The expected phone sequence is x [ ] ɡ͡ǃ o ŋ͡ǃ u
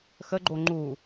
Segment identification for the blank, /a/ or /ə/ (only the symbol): ə